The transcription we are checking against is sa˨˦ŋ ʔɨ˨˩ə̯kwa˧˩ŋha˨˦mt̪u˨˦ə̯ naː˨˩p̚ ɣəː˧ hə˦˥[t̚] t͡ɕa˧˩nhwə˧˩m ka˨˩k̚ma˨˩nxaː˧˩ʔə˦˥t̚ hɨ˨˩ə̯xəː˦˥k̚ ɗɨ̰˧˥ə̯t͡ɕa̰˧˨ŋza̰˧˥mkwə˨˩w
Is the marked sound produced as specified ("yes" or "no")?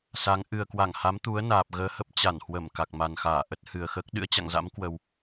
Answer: no